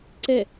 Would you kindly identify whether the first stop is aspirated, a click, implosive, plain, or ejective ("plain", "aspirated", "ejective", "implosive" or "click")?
click